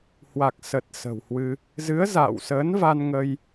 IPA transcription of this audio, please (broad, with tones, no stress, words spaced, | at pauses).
hwa˨˩k̚sə˨˩t̚ sə̤˨˩whwɨ˧ | zɨ˨˦ə̯za̰ː˧˨wsəː˨˦nva˧n ŋə˧j